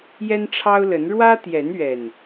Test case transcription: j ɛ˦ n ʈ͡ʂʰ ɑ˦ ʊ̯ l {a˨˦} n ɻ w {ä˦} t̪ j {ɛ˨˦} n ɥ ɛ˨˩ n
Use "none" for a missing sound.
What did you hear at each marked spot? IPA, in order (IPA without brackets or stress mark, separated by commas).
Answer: ə˨˦, ä˦, ɛ˨˦